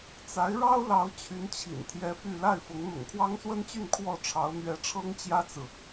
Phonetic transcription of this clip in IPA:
t͡sa˧˥ɪ̯ɻɑ˥ʊ̯lɑ˧˥ʊ̯ t͡ɕʰy˧˥nt͡ɕʰḭ˨˩nt̪ʰjɛ˧˥ py˥˧ la˥˩ɪ̯fʊ˧˥ŋ n̪ʊ̰˨˩ŋkʰwɑ˥ŋswə˥nt͡ɕy˥˧n kʰwɔ˥˩ʈ͡ʂʰɑ˧˥ʊ̯ n̪ɥɛ˧˥ʈ͡ʂʰɤ˥ŋt͡ɕjä˥t͡sɹ̩˨

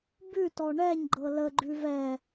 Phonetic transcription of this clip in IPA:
bʉtɔ ɳɛɲɡ͡ǃɤ ləɡ͡ǃʉ vɛ

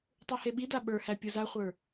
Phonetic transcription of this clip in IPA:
tˤuheɓida ɓə˞hæ pʲuzaχʷə˞

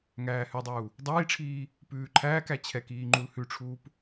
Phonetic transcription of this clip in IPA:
ŋæːhʉdˤuː | dˤiːʈ͡ʂʰiː | pʉːǃʰæːk æt͡ɕʰɛkiːŋ͡ǃul hʉʈ͡ʂʰuːp

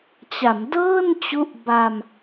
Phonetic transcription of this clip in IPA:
t͡ɕa˩˦mdɤː˥˩nt͡ɕu˦˥ʔ ba˧m

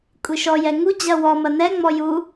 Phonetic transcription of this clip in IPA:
kʷʼiʃɔjɛ ŋu d͡ʑɐwɔmɐ nɛŋ͡mɔ ju

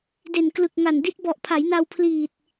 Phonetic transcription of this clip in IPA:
de˨˩n klɯ˨˩k̚ŋa˨˩ndi˦˥t̚ bɔ˨˩ʔpʰa˩˦jna˧w pʰliː˨˩t̚

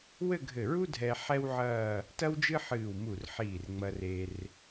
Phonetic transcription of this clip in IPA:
wɘ˥˧ɡʱɘ˧˩ɹu˥ dʱɛ˧ ħɛ˥wʕɐː˥˧ | tɐ˥wd͡ʒɨ˥ħɨː˧˩wmu˧˩r ħiː˧˩rŋ͡mɐ˧ re˧r

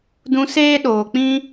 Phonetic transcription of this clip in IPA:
dũ˧seː˦ɗoː˨k͡pĩ˦

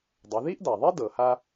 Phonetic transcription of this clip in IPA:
dˤe˩˧ði˥ʔda˩ðˤi˥ dɤ˩ha˧

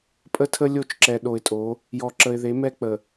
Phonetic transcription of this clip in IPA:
pʼə˦tʰə˦ lʲo˦˨t͡ʃǁɛ˨ɗo˨ɪ̯tʼo˨˦ | jɔ˨ǁə˨ɪ̯ðe˨˦ mɛ˦k͡pə˨

